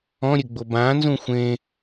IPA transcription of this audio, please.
ɔ̃ ɾʲ ɘ ɡ͡b o b ã n z ũ xʷ ẽ

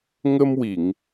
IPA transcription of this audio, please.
ŋ ə˧ m w i˨˩˨ ŋ

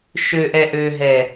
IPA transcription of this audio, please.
ʃ ø ʔ ɛ ʔ ø ɦ ɛ

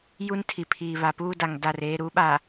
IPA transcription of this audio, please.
j u˦ n tʰ i˨ pʰ iː˨ β a˨ p uː˦ d a˨ ŋ d a˦˨ r eː˦ ɾ u˨˦ ɓ a˨

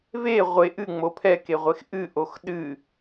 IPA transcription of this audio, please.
v e ʁʷ e ʔ ɨ ŋ͡m o pʰ ɛ k e ʁʷ e x ʔ ɨ ʔ o x ɗ ɨ

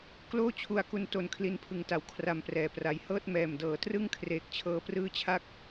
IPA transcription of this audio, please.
k l oː˥˩ t͡ɕʰ u˧ a̯ k u˧ n t o˧ n kʰ l i˧ n pʰ ɯ˨˩ ŋ t a˩˦ w kʰ r a˨˩ m p r ɛː˨˩ p r a˨˩ j h ɤː˥˩ t̚ m ɛː˨˩ m d ɤː˩˦ t r ɯ˥˩ ŋ kʰ r eː˨˩ k̚ t͡ɕʰ ɤː˧ p r ɯː˦˥ t͡ɕʰ a˦˥ k̚

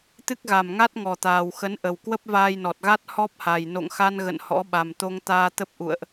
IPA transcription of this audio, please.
t̪ ɨ˦˥ k̚ ɣ a˨˩ m ŋ a˦˥ t̚ ŋ ɔ˨˩ t̪ aː˨˩ w x ə˨˦ n ʔ ə˨˩ w k w ə˦˥ p̚ v aː˧ j n ɔ˨˩ t̚ ɣ a˦˥ t̚ h ɔ˦˥ p̚ h a˨˩ j n o̰˧˨ ŋ x a˧ n ɣ ə̰˧˨ n h ɔ̰˧˥ ɓ a˨˩ m t̪ o˧ ŋ t̪ aː˧ t̪ ə˦˥ p̚ ʔ ṵ˧˨ ə̯ ʔ

